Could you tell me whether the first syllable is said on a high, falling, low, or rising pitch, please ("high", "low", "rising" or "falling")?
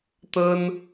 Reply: high